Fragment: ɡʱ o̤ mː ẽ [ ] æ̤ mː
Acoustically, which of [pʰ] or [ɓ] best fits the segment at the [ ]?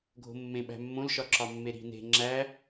ɓ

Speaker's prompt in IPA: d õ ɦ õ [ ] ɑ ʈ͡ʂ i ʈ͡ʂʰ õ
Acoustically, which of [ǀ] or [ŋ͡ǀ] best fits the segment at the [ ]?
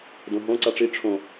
ǀ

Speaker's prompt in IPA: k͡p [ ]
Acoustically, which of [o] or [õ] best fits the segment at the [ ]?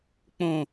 õ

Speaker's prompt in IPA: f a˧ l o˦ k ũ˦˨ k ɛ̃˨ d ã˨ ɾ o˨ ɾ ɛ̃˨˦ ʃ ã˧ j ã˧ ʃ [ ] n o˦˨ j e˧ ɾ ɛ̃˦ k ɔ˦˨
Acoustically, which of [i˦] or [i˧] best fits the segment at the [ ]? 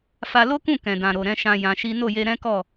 i˦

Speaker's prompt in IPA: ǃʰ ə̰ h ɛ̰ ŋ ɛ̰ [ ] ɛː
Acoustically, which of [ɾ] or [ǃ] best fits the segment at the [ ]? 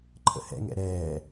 ɾ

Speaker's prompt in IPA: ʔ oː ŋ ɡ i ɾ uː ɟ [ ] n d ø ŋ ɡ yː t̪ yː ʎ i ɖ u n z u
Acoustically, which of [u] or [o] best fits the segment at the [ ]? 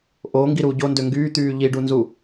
o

